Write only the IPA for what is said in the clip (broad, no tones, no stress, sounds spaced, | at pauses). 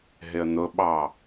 ɦ ɪ ə̯ n̪ ʊ ɓ ɑ